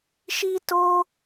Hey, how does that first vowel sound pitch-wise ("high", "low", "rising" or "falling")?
high